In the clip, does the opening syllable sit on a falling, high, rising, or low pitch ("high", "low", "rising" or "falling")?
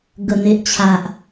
low